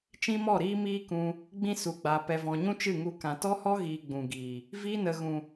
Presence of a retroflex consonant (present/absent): absent